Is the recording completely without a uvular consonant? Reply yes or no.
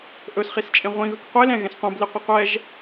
no